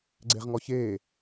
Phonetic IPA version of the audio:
ɡ͡ǀ e ʁ ŋ ɔ ç eː

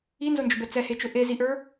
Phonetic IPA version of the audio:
i n z ʊ n d͡ʒ ʊ b ɛ t͡s ɛ h e t͡ʃ ʊ ʔ e z i ʔ ə˞

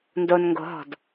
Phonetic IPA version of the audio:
n d o n ŋ ɡ o̤ ɦ ɔ̤ d

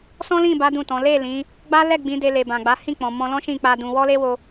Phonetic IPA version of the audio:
s ɔ̃˦ l ĩ˦˨ b a˨˦ d ũ˦˨ t ɔ̃˨˦ l e˦˨ l ĩ˨˦ | ɡ͡b a˦ l ɛ˦˨ ɡ͡b ĩ˨˦ d e˧ l e˨ b ã˨ ɡ͡b a˨˦ h ĩ˦˨ k͡p ɔ̃˨ m ɔ̃˧ l ɔ̃˦ ʃ ĩ˦˨ k͡p a˧ d ũ˧ w ɔ˦ l e˦ w o˧

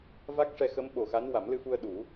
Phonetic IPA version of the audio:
v a˦˥ k̚ ʂ ɛ˧ x ə˧˥ m ɓ o˨˩ x a˧˥ n w a˨˩˦ m l ɨ˧ f u˧ ə̯ ɗ u˨˩˦

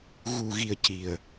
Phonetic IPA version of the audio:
ɣ u˨˩ ɣ i˨˩ ə̯ c i˨˩ ə̯

